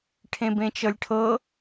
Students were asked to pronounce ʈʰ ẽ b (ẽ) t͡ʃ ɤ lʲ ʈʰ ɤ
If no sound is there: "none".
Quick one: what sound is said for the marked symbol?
ẽ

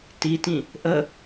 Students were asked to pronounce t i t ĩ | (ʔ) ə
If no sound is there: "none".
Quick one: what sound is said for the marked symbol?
ʔ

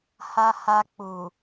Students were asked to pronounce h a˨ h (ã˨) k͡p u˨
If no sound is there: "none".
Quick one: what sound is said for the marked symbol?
a˨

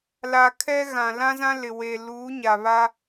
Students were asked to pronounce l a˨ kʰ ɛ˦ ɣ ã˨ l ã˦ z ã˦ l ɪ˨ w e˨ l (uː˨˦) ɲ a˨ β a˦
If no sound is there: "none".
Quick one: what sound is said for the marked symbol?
uː˨˦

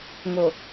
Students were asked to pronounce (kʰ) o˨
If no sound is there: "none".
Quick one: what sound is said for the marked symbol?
ŋ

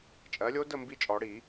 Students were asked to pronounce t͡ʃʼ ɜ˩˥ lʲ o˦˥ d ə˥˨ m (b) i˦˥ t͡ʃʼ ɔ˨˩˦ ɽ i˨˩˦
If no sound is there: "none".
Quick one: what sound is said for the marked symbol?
b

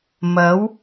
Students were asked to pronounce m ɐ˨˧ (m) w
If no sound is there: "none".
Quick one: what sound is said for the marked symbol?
none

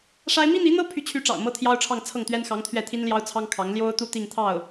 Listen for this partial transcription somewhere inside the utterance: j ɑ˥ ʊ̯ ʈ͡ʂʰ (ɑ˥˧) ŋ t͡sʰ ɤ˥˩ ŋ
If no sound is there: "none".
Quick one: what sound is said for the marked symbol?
ɑ˥˧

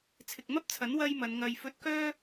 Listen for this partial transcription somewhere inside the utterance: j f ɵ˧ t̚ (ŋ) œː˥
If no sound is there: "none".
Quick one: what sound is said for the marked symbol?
k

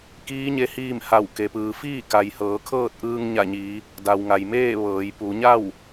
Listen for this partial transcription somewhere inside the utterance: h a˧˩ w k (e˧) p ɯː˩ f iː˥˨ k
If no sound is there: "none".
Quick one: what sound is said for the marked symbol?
e˩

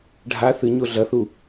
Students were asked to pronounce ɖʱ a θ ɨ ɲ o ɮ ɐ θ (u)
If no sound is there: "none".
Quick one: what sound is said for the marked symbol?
u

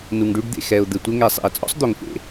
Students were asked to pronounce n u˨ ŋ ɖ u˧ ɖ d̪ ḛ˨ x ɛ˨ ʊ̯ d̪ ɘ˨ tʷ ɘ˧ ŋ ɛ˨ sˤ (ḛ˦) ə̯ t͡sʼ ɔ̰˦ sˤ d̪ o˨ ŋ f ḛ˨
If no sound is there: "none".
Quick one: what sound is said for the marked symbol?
ḛ˨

